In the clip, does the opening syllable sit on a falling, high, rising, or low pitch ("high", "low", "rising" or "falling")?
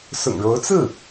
low